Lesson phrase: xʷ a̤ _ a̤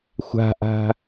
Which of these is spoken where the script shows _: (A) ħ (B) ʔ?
B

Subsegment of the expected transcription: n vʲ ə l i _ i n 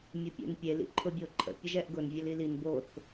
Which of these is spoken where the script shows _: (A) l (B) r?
A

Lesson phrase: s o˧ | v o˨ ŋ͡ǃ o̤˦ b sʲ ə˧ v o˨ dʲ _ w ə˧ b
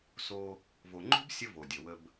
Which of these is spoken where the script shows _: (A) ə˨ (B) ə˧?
A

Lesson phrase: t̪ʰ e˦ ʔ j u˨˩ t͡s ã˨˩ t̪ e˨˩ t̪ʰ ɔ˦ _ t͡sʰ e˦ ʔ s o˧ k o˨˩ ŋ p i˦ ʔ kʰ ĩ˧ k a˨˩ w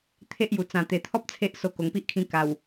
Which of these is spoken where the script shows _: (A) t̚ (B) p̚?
B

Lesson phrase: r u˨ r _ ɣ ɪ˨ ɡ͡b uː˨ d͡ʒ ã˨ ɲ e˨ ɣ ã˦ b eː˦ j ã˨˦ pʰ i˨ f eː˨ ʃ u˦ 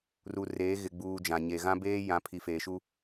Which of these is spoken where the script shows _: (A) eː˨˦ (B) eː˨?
A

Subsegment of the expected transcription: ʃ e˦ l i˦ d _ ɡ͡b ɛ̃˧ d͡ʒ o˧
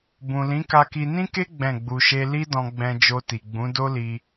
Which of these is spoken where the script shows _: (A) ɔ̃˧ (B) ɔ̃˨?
A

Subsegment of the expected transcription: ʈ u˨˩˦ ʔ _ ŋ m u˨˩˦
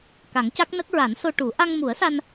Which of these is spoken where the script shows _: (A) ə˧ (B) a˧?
B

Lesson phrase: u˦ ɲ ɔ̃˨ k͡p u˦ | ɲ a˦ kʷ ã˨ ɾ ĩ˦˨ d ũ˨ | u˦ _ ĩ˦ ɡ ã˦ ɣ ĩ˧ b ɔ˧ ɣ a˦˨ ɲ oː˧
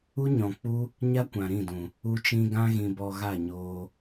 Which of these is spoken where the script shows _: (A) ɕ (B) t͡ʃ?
B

